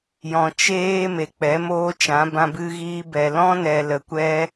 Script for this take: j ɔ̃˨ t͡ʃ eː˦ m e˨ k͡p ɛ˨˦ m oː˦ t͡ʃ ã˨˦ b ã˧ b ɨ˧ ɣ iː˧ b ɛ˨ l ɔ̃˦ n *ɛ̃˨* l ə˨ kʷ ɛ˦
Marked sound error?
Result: yes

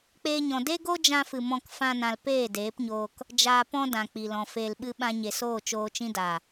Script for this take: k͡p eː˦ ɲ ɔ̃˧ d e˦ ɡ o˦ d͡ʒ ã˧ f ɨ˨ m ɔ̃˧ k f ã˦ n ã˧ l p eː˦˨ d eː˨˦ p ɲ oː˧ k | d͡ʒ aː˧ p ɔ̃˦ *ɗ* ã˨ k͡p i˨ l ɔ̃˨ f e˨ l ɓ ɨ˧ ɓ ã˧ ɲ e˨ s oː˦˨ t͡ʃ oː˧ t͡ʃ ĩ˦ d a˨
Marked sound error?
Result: yes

